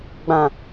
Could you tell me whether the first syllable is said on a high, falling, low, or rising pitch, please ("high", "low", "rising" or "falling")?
low